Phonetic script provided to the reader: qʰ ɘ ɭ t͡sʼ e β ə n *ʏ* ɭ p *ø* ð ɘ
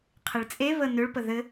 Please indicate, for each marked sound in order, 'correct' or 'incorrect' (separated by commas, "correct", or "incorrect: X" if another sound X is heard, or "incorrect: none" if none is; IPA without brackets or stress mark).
correct, incorrect: ə